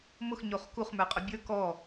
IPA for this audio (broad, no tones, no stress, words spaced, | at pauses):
mʊxɲoχ kuχmə˞qʼʊ bʲə˞ kɔ